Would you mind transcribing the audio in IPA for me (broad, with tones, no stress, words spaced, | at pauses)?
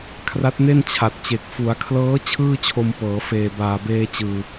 kʰra˦˥t̚ne˥˩nt͡ɕʰa˨˩t̚t͡ɕe˨˩k̚ fu˩˦a̯kʰlɤː˦˥ t͡ɕʰɯː˥˩t͡ɕʰo˧mpɤː˩˦ feː˨˩baː˨˩beː˧t͡ɕɯː˨˩